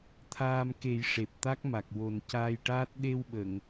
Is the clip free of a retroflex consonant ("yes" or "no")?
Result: no